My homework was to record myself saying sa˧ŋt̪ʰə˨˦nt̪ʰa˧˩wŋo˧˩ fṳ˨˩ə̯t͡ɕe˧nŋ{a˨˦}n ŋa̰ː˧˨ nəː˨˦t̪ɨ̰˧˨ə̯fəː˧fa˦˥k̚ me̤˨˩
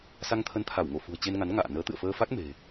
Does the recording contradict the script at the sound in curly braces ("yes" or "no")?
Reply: no